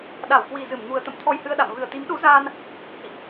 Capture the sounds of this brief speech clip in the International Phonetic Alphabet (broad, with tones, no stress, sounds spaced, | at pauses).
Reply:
ɗ a˧˩ w k w i˨˩ z ɨ˧˩ m ŋ u˨˩ ə̯ t̪ ə̰˧˨ m t̪ʰ ɔ˧ j h ɨ˧ ə̯ ɗ a̰˧˨ m v ɨ˨˩ ə̯ t̪ i˨˦ m ɗ u˨˦ z aː˧ n | h ḭ˧˨ ʔ